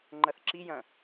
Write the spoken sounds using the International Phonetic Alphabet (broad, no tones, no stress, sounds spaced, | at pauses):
ŋ͡ǃ ɐ θ ǁ i j ɐ̃